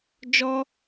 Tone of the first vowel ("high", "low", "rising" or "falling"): high